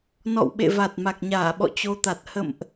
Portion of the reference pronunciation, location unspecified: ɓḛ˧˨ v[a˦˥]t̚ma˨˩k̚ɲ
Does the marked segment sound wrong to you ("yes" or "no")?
yes